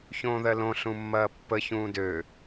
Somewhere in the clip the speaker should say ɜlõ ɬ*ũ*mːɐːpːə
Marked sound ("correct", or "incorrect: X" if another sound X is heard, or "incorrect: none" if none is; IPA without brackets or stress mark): correct